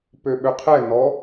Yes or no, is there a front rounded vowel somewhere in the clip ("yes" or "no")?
yes